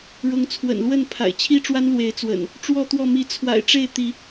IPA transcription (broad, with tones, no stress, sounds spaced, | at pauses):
ɻ ʊ˨˦ ŋ t͡sʰ w ə̰˨˩ n l w ə˥˨ n pʰ a̰˨˩ ɪ̯ t͡ɕʰ i˦ ʈ͡ʂ w a˦ n l w e˨˦ ɪ̯ t͡s w ə̰˨˩ n | ʈ͡ʂ w ɔ˥˨ t̪ w ɔ˥˨ m i˨˦ t͡sʰ w a̰˨˩ ɪ̯ ʈ͡ʂ e˥˨ ɪ̯ t̪ i˨˦